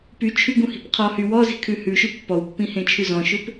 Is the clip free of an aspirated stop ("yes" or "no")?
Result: no